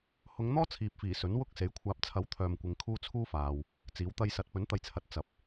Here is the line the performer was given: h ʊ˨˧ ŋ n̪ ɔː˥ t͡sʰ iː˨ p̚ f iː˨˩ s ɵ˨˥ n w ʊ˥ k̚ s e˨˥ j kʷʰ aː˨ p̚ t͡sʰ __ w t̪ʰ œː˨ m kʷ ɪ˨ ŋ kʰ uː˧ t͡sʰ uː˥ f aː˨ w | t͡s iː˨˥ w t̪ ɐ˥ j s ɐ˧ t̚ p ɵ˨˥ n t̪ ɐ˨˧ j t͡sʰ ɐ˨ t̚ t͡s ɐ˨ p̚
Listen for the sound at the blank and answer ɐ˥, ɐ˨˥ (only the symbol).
ɐ˨˥